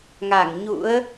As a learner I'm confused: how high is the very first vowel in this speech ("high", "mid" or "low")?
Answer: low